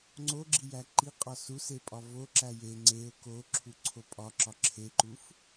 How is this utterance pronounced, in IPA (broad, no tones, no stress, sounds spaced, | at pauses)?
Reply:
ŋ͡ǀ o ɡ͡ǁ i j æ ǃ i qʼ ɒ s u s e pʼ ɒ v o ǁ æ j e ŋ͡ǀ e ʊ̯ k o ǁʰ u ǀʰ o pʼ ɒ ǁ ɒ ǁʰ e ǃ u f